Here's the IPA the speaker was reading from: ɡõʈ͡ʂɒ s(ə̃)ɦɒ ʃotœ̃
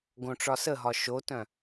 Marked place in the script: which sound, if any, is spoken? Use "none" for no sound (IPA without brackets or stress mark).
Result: ə